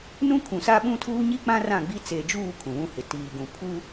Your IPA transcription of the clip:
n ũ˦ kʰ ũ˨ s a˦ ɓ ũ˦ tʰ uː˦ ɲ i˦ k͡p ã˦ r ã˦˨ ɡ͡b i˦ t͡s eː˨ d͡ʒ uː˦˨ kʰ ũ˨ β ũ˦ h ɪ˨ t iː˨ ɡ ũ˨ pʰ u˦

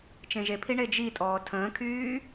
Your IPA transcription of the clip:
t͡ʃ ẽ ʒ e pʰ i ɳ e d͡ʒ i tʼ ɔː tʰ ə̃ː kʰ yː

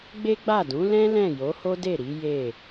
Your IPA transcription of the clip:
ɡ͡b e˦ ɡ͡b a˦˨ d ũ˨˦ l ɛ̃˦ l ɛ̃˦˨ j o˨˦ h o˦ d e˦˨ ɾ i˨˦ j e˦˨

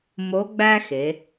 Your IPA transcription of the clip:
m o˧˥ ɡ͡b æ˥ x e˩˧

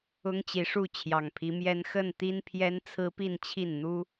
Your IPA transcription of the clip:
ʊ˦ ŋ t͡ɕ i˨˦ ʂ u˥˨ t͡ɕʰ j ɑ˨˩ ŋ pʰ i˨˦ m j ɛ˦ n x ə˥˨ n t̪ i˦ n pʰ j ɛ˦ n t͡sʰ ɹ̩˦ p i˥˨ n t͡ɕʰ i˥˨ n n̪ u˦

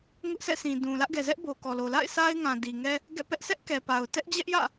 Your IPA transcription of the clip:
ŋ ʊ˦ ʔ sʰ ɛ̰˦˨ s ĩ˨ d ũ˨ l ä˦ ʔ ɡ ɛ˨ z ɛ˦ ʔ b o˨ k ɔ˨ l o˨ l a̰˦˨ ɪ̯ sʰ a˦ ɪ̯ ŋ ã˨ d i˨ ŋ ɛ˦ | ɡ ɛ̰˦˨ p ɛ˦ ʔ s ɛ˦ ʔ k ɛ˨ p a˨ ʊ̯ t ɛ˦ ʔ d͡ʑ ɛ˦ ʔ j ä̰˦˨

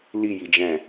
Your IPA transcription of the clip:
l i j i d͡ʒ ɛ̃

